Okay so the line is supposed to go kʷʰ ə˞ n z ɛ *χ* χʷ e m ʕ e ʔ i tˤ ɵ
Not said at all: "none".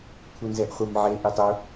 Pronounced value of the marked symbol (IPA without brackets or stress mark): ʔ